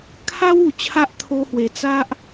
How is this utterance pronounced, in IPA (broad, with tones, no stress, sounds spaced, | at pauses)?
kʰ a˦ w u˨˩ t͡ɕʰ a˦ ʔ t̪ʰ o˧ h w e˨˩ t͡s a˦ ʔ